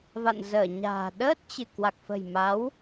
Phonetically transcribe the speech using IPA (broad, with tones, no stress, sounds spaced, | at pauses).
v a̰˧˨ n z əː˧˩ ɲ a̤ː˨˩ ɗ əː˦˥ t̚ t͡ɕ ɨ˧˩ k w a˨˩ k̚ f ə̤˨˩ j m a˨˦ w